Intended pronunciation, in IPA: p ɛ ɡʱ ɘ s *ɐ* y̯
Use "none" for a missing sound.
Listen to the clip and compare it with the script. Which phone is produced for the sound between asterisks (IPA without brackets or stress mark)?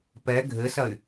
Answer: ɐ